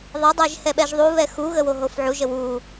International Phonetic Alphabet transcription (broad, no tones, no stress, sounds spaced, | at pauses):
ðˤ ɘ dˤ ɛ ʒ h ɛ ɓ ɛ ʒ ðˤ u β ɛ x u ɣ ə w o ɦ o f ʕ u ʒ ə w u